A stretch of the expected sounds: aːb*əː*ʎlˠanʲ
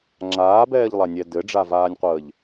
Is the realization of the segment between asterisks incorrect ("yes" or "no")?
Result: yes